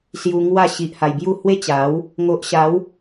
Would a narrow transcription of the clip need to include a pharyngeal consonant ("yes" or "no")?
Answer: no